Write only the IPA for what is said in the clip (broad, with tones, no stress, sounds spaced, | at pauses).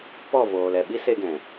p ɔ˦˨ v oː˨ l ɛ˨ ɓ i˦ s e˧ ɡ ɛ̃˨